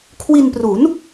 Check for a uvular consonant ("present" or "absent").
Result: absent